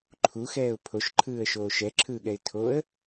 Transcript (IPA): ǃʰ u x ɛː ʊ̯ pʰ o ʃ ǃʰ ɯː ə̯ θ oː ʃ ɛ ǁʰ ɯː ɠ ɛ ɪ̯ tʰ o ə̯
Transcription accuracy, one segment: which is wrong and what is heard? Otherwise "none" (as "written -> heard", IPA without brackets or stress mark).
θ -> ʃ